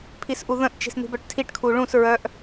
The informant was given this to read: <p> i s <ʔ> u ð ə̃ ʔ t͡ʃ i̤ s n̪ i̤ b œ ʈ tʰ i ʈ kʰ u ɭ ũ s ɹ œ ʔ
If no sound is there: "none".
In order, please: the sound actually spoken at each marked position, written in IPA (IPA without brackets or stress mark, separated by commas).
pʰ, ʔ